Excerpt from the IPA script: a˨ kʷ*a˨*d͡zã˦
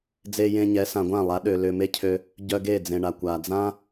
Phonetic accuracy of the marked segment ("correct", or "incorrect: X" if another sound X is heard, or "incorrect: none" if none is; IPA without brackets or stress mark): correct